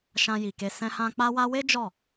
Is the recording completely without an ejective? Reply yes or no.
yes